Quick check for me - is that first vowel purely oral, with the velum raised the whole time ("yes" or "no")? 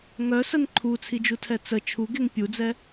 yes